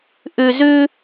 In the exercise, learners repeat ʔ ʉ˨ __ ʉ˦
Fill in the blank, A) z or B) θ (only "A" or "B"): A